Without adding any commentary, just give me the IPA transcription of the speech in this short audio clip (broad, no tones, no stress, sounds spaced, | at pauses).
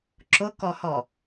ǁ ʊ k ɔ h ɔ